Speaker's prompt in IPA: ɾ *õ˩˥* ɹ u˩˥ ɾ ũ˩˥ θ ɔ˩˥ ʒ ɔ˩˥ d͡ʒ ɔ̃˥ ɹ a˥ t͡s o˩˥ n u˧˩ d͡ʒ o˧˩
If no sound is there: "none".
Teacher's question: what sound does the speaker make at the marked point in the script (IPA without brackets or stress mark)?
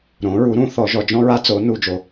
õ˩˥